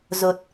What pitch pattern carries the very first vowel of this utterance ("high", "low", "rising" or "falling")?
low